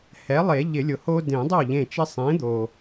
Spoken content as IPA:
h ɛ˩˥ lˠ e˨˩˦ ʎ ɪ˨˩˦ lʲ ʊ˩ h o˦ d ẽ˨˩˦ dˤ o˥˩ ʎ ẽ˧˩ t͡ʃ ɪ˦ sˤ ẽ˩˥ d̪ o˩

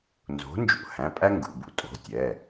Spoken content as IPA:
n z o̤˨˥ n d͡ʒ ṵ˧ h æ̃˩˧˩ pʼ æ˥ ŋ ɡ ṵ˩˧˩ b ṵ˥ tʼ o̤˩˧˩ tʲ ɛ˩˧˩

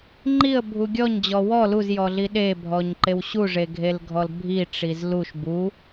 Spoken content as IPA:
ŋ͡ǃ i ə̯ bʱ u ɡʲ ɔ ɲ d͡ʑ ɔ w ɔ l u z j ɔ ɮ i ɗ e bʱ ɔ ɲ ǃ e w ɕ u ʐ e ɡʱ e l ɡʱ ɔ l bʱ i ʈ͡ʂ i z l u ʃ b u

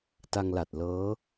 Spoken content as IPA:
t a˧ ŋ l a˨˩ t̚ l ɤː˦˥

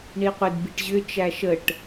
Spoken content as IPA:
ɳ i qʷ ɪ d b i ʈ ʑ ʏ t͡ʃ æ ʃ ə ʈ

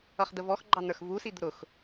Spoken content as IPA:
ʌ χ d̪ ə v ɔ x ɡ͡ǃ ɑ n̪ ə˞ x v u s i d̪ ʊ ɾ ʊ x

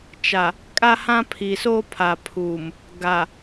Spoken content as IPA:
t͡ʃ a˨ | kʼ a˦ h ã˦ pʰ i˨ s o˦ pʰ a˨ pʰ u˨ m | ɡ a˨

